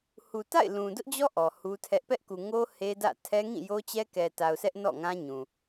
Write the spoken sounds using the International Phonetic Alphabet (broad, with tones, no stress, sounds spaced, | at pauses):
h u˨ t a̰˦˨ ɪ̯ l ũ˨ d ʊ˦ ʔ d͡ʑ ɔ˦ ʔ ɔ˨ h u˦ tʰ ɛ˦ ʔ p ɛ˦ ʔ k u˨ ŋ o˦ h e˦ d ä̰˦˨ tʰ ɛ˦ ŋ ĩ˦˨ j o˦ t͡ɕ ɛ˦ k ɛ˨ t a˨ ʊ̯ s ɛ˦ ʔ n ɔ̰˦˨ ŋ ã˦ ɲ ũ˨